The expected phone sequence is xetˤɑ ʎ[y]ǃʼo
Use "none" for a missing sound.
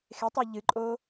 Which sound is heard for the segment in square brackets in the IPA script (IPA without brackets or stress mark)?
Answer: ɨ